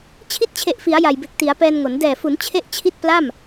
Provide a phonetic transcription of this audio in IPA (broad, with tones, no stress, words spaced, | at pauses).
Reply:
t͡ɕʰi˥˩t̚t͡ɕʰe˨˩ʔfi˩˦a̯ ja˨˩jbe˨˩k̚ti˩˦a̯ pɛː˧nŋo˩˦n dɛː˨˩fu˩˦n t͡ɕʰe˥˩ʔt͡ɕʰi˥˩t̚ pla˥˩m